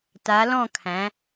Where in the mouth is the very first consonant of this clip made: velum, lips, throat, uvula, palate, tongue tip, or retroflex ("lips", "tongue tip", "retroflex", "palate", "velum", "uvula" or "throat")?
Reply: tongue tip